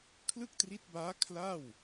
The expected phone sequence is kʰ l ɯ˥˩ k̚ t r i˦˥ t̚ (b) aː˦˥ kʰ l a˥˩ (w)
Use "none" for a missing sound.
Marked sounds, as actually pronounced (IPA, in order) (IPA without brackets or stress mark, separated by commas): b, w